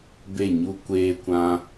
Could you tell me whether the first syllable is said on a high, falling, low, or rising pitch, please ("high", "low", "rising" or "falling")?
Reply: falling